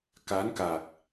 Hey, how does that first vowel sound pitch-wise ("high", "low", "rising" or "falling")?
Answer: rising